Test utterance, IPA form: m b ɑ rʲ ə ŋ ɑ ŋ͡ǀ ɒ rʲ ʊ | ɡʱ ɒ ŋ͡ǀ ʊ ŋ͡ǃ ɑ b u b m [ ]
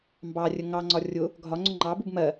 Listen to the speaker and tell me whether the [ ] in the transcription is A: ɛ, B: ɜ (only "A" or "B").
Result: B